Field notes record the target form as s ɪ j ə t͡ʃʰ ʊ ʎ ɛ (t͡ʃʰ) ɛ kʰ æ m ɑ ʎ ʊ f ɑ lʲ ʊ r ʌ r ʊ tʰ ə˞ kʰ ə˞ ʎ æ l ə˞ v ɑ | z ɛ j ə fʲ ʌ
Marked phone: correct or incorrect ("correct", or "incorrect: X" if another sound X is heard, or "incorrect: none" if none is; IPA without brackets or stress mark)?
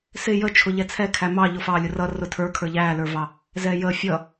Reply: incorrect: t͡sʰ